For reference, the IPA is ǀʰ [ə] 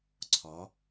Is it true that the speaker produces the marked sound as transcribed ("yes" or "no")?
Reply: no